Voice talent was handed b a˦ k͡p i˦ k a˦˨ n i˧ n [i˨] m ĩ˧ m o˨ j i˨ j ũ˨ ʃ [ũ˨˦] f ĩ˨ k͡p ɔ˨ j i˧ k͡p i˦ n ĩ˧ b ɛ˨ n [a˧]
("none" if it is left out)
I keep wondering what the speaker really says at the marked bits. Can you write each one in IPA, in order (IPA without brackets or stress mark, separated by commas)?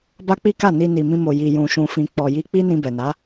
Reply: i˨, ũ˨, a˨˦